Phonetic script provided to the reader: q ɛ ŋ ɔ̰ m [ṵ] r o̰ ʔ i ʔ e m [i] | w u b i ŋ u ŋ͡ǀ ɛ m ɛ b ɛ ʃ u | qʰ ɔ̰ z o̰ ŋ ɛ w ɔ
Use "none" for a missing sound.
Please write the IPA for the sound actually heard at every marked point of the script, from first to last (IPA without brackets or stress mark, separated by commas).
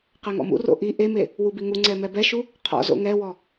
ṵ, e